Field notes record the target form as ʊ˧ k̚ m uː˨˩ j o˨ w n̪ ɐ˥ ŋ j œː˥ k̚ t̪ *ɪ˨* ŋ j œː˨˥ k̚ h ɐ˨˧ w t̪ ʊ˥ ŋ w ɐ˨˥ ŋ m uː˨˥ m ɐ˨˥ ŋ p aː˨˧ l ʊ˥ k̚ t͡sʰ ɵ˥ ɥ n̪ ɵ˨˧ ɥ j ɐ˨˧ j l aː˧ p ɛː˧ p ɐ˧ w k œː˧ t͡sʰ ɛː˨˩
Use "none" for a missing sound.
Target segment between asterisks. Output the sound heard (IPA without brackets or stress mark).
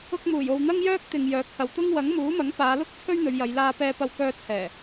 ɪ˨